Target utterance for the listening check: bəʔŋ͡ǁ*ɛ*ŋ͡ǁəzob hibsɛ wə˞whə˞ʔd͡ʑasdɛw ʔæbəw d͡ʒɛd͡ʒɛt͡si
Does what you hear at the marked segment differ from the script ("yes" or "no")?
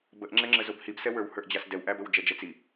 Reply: no